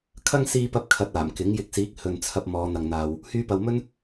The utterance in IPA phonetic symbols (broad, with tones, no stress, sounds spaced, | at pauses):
kʰ ɐ˥ ŋ s iː˧ p ɐ˧ p̚ kʰ ɐ˧ t̚ aː˨˩ m k ɪ˨˥ ŋ j ɪ˨˥ k̚ s iː˨˥ k̚ h ɵ˨ n t͡sʰ ɐ˧ p̚ m ɔː˨˧ n̪ ɐ˨ ŋ n̪ aː˨ w | h yː˧ p ɐ˨ w m ɵ˥ n